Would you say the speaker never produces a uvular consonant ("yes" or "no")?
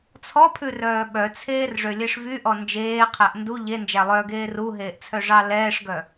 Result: no